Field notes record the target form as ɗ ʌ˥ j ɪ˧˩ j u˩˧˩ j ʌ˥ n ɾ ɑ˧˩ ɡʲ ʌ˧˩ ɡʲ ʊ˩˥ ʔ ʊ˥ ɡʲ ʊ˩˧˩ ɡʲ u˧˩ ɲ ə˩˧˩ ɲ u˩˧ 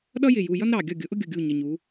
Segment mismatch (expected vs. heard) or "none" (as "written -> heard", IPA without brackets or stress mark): none